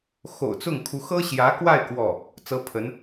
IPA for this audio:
x o̰˨˩ ʊ̯ t͡s ʊ˥˩ ŋ kʰ u˧˥ x ɤ˥ ɕ j ä˧˥ k w a˥˧ ɪ̯ k w ɔ˥˩ | t͡s ɤ˥ pʰ ə˧˥ n

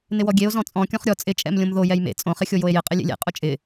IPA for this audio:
n ɪ w ɔ ɡʲ e o̯ z ɔ̃ t͡sʼ ɔ̃ kʲ ɔ̃ χ ɾʲ ɔ t͡sʼ ɪ t͡ʃʼ ɛ̰ m lʲ õ m ð o j ɛ j m ḛ t͡sʼ õ χ ɪ xʲ o j o e̯ j ɪ qʼ ɪ lʲ ḛ lʲ ɛ̰ qʼ ʊ t͡ʃʼ ɪ

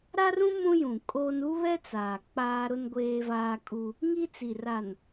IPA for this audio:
ɾ a˦ r ũ˦ m ũ˦ j ũ˨ kʼ o˦ n u˦ β ɛ˦ t͡s aː˨ k͡p aː˦ ɾ ʊ˦ n ɡʷ eː˦ v aː˦ kʼ u˦ | ŋ i˦ t͡s i˨ r a˨ n

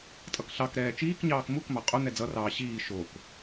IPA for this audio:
tʼ ʌ k ɬ ɑ k ɾ ɛː t͡ʃ iː k ɲ ɑː k m u k m ɑ qʼ o n̪ ɛ d͡z ʌ r ɑː ɕ iː ʃ o k

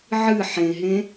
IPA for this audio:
ʕ ɨ ħ ẽ ɦ ẽ

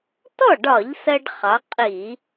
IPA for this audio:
t ɔ˥˩ ɖ ɒ˧˩˧ ʎ s ɜ˦ ɖ χ ɑ˩˥ qʼ i˧˩˧

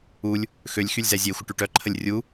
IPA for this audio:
u lʲ | x ø lʲ x y lʲ z ɛ zʲ e xʷ ə ʈ y ʈ œ ǃʰ ə lʲ rʲ u

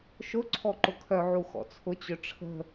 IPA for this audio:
ʃ ʊ ǀʰ ɔ ǃ ʊ kʰ œ ʕ u x ɔ̰ t͡sʰ ʊ t͡ɕ ʏ ʈ͡ʂʰ ə̤

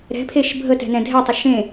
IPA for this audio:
ɾ ɛ̤ pʰ e ʃ bʱ ə t ɛ̤ n ɛ̃ dʱ ɛ tˤ ə ʃ ẽ

